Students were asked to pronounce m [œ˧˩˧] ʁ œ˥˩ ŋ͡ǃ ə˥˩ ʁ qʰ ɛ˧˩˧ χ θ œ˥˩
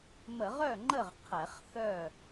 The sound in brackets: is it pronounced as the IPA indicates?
no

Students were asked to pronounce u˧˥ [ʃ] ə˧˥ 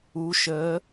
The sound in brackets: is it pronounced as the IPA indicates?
yes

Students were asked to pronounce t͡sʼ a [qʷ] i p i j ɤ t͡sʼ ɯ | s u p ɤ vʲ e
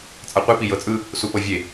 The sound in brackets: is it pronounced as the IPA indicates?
yes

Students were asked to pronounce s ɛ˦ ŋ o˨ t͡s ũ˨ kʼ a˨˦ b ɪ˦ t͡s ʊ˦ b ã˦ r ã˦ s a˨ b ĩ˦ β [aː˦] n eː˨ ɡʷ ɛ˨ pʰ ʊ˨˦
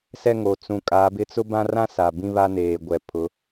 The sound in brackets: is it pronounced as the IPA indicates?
no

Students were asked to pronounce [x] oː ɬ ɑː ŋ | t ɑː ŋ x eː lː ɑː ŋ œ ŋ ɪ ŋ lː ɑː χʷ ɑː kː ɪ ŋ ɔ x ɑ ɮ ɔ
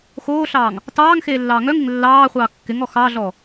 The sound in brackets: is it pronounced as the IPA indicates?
yes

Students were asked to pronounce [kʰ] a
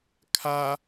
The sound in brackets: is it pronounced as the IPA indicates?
yes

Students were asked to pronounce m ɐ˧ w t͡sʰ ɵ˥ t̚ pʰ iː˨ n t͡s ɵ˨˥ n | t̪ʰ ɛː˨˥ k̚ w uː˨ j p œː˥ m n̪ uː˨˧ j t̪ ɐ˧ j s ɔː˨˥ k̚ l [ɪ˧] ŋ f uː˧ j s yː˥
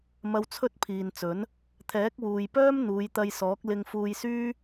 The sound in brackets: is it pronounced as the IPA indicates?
yes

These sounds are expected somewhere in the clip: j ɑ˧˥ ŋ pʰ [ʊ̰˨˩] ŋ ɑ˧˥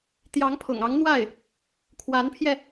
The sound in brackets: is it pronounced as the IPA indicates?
yes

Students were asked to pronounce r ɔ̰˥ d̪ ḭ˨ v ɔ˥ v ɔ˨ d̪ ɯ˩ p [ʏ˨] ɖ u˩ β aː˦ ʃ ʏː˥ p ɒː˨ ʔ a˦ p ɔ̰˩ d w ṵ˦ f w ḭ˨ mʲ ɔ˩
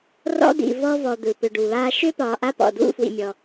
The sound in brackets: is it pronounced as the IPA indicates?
yes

